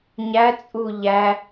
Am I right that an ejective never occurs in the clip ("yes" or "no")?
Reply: no